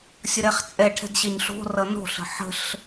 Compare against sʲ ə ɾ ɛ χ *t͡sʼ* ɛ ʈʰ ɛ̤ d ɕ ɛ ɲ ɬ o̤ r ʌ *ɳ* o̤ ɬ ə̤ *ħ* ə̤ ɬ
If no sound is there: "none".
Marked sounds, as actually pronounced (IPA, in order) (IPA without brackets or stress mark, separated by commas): t͡sʼ, n, ħ